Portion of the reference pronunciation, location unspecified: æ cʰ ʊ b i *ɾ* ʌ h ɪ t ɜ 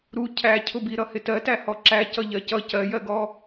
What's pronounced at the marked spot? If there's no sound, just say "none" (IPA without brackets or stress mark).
ɾ